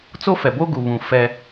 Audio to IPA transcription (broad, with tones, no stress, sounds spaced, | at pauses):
t͡s o˦ f ɛ˨ b o˦ ɡ u˨ β ũ˨ f ɛ˦